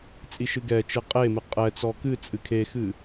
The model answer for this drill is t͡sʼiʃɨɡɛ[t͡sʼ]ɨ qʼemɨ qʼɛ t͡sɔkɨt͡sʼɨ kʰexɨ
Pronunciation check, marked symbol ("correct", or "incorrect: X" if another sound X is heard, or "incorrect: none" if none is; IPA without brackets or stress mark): incorrect: t͡ʃ